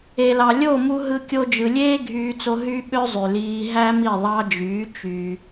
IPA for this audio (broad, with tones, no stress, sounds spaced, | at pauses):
e˨ l ɑ˨ lʲ o˦˨ m u˧ ɦ ɯ˧ kʲ o˦ d͡ʒ ɯ˧ lʲ eː˦ ɡʱ yː˧ t͡s o˧ ɦ y˦ ɓ ø˦ zˤ y˨ l iː˧ ɦ æ˦ m i˦˨ ðˤ ɑ˧ d͡ʒ yː˨˦ t͡ʃ y˧